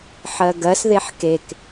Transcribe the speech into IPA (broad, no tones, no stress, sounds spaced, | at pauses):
ħ ɜ ɡ ɜ s ð e ħ k e k